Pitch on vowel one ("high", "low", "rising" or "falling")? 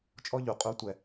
high